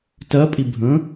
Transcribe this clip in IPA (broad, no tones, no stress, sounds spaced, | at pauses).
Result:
t ɜ pʼ i bʱ ə̃